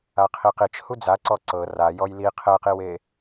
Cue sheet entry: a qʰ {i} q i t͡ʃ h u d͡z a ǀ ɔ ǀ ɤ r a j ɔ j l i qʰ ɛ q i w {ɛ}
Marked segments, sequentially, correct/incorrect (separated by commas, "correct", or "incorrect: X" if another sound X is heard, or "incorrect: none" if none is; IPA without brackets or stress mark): correct, incorrect: e